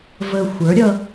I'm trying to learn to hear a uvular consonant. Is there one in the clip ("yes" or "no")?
no